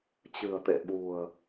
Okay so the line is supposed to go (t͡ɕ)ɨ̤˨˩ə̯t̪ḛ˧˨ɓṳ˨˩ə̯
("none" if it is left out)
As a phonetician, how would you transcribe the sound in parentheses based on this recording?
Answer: t͡ɕ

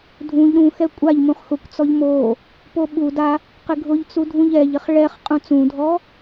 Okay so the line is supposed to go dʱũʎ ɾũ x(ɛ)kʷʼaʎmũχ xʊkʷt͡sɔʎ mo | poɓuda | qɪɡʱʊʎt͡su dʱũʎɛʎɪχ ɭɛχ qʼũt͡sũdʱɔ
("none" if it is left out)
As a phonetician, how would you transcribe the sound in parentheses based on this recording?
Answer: ɛ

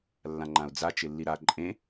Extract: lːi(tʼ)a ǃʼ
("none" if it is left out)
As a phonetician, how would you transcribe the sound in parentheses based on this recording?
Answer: ɾ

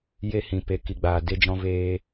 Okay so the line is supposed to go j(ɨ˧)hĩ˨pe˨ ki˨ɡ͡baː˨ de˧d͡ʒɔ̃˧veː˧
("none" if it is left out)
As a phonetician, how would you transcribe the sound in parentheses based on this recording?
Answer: e˧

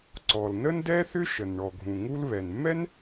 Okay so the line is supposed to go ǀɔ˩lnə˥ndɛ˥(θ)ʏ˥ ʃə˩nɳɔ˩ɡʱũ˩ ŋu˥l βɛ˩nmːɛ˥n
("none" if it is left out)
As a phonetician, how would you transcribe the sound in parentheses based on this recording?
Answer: θ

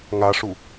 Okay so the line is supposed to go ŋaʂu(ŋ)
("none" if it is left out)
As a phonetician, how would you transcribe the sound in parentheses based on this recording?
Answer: none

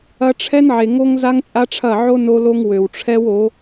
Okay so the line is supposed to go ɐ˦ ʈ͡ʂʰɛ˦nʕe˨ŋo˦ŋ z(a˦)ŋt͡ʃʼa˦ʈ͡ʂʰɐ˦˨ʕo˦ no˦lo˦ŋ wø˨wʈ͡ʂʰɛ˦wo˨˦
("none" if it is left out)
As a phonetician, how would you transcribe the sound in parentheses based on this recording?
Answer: a˦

